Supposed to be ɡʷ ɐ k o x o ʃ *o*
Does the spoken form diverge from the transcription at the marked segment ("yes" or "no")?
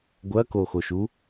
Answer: yes